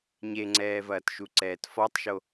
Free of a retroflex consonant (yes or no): yes